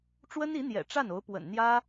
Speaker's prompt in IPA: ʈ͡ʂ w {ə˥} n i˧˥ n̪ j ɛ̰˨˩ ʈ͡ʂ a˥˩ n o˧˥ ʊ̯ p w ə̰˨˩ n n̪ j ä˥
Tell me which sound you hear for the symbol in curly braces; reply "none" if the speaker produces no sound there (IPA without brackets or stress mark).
ə˥